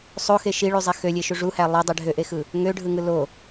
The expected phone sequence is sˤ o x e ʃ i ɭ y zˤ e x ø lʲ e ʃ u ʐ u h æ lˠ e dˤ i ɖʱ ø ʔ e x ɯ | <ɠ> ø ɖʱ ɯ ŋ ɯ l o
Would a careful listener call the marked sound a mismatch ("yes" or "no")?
yes